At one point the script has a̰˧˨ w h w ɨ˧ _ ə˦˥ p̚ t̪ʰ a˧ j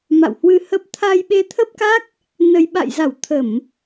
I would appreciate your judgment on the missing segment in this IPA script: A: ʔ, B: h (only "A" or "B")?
B